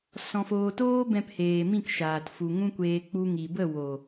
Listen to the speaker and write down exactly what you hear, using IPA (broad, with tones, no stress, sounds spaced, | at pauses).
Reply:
s ɔ̃˨ f oː˨ t oː˦ b ɛ̃˧ p h eː˨ m ĩ˦˨ k ʃ aː˨ t f u˨ ŋ ũ˦ kʷ eː˧ k͡p u˧ ŋ i˨ b ə˦˨ w o˨